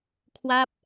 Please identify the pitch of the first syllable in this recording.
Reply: falling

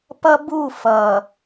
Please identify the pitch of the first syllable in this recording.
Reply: high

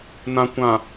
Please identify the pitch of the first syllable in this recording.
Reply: low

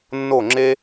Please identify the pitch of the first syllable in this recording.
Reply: falling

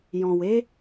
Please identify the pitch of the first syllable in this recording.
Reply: low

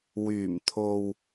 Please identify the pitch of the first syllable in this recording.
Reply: low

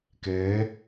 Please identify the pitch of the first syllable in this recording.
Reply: rising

